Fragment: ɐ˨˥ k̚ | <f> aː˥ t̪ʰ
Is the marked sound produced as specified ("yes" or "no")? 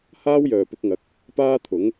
no